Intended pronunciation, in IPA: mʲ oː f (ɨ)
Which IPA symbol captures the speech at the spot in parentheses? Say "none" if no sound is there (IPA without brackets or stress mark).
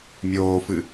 ɨ